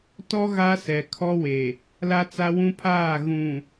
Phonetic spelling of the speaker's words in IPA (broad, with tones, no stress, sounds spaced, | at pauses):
t ɔ˦ ɣ a˦ s ɛ˨ kʰ ɔ˦ w e˨ | l a˦ t͡s a˦ w ũ˦ pʰ aː˦˨ ɣ ũ˨